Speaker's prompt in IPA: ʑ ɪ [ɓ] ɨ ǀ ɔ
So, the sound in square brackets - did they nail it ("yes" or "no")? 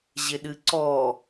no